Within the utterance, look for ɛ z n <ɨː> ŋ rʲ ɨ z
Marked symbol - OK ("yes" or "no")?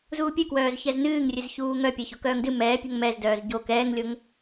yes